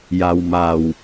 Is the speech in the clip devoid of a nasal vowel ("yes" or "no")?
yes